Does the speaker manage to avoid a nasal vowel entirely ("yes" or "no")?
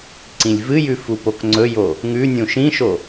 no